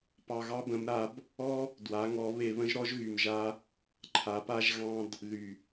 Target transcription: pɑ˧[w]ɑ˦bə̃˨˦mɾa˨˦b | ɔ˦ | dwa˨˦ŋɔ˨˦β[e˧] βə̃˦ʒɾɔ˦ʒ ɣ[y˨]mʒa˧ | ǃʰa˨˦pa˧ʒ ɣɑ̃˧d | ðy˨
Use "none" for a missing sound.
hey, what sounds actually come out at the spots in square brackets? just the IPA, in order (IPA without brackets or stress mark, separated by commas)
ɣ, e˧, y˨